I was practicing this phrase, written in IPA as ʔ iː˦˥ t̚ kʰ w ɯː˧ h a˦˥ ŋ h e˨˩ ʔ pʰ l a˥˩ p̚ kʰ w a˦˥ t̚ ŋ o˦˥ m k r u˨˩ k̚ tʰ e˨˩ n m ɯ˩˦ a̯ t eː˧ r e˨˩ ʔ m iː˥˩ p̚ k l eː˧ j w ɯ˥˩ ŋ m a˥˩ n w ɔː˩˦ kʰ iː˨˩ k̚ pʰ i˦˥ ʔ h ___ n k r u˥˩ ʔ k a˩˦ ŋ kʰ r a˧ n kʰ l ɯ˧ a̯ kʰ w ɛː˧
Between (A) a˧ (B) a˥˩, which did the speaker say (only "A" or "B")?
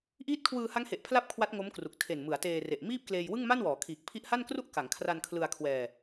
B